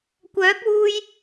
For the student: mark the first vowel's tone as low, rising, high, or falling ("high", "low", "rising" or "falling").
rising